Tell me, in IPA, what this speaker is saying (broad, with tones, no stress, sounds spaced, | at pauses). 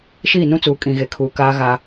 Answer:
ʃ iː˦˨ n ũ˦ t͡s uː˨ kʼ ĩ˨ ɣ e˨ kʰ uː˨ k aː˦ ɣ a˦